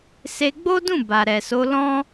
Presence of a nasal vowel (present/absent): present